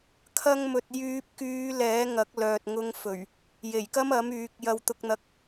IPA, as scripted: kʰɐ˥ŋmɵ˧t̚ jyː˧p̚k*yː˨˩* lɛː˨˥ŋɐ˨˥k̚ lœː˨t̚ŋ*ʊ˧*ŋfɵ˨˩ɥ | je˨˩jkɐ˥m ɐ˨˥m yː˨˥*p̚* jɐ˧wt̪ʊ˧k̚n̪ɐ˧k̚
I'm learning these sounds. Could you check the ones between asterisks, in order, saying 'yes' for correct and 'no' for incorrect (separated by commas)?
no, yes, no